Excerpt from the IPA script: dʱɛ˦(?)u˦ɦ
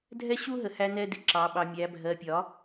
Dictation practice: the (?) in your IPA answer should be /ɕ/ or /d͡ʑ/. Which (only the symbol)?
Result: ɕ